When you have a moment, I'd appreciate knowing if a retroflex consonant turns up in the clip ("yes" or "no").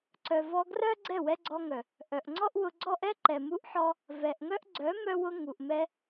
no